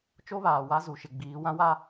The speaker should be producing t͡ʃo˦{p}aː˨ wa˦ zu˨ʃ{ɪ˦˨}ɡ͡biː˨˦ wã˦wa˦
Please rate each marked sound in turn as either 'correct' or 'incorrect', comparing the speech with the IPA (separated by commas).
incorrect, incorrect